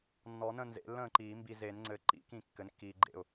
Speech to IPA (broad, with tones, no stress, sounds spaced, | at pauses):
nː ɔ˨˩˦ n ə̃˥˩ n z ḛ˨˩˦ lː ə̃ː˥˩ ǃ iː˨˩˦ m b i˨ z e˨˩˦ n ŋ͡ǀ ɘ˩˥ ǃ ḭ˨˩˦ k ĩ˥˩ kː ɘ˩˥ n kː iː˨ ɡ͡ǃ ḛ˥˩ ʊ̯